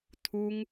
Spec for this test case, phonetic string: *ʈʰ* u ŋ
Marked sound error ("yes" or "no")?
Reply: yes